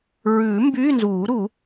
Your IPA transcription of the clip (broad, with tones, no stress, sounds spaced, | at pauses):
ɹ ʉː˨˩˦ m b yː˧˥˧ n z uː˨˩˦ ɾ u˨˩˦